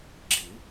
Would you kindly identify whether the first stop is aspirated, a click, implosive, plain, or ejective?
click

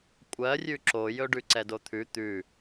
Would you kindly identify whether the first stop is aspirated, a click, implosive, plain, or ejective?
ejective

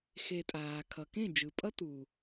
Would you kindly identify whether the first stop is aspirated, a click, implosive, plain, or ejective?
ejective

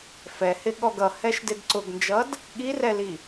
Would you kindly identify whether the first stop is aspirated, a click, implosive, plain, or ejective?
implosive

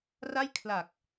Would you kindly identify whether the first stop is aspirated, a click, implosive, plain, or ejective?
aspirated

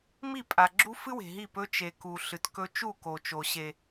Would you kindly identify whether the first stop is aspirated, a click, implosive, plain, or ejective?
ejective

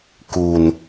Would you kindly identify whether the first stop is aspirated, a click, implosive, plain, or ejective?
plain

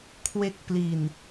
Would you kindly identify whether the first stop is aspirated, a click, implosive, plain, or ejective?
aspirated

